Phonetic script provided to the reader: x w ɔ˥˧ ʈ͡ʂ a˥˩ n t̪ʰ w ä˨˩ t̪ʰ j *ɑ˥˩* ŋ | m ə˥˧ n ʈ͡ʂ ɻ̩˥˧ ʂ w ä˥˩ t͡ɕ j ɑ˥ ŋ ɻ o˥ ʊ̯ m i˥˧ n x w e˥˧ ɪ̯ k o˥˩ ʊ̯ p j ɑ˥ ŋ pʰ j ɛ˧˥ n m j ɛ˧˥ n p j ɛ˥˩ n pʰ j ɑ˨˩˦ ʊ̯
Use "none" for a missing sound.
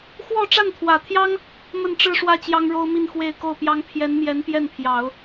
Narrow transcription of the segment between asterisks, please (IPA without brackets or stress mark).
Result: ɑ˥